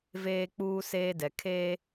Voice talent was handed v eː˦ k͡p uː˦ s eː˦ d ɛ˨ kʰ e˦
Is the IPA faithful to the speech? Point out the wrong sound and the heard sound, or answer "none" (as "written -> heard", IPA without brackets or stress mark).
none